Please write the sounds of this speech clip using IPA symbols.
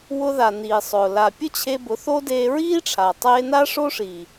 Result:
wʊ˧ða˨ niː˨sˤʊː˨ la˨pʲʊ˦ t͡ɕʰe˧bʊ˨˦ θo˦deː˧ ɹiː˦ʈ͡ʂʰa˨tˤeː˧na˦ ʂo˦ʂiː˨

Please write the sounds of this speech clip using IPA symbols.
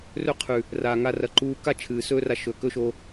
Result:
rɵ˦qʰʉ˨ | raː˨ŋa˧ rɐ˧ǃuː˦ ka˦ t͡ʃʰɨː˨ sɵː˦ra˧ ʃɵ˨ kɵ˦ʃo˧

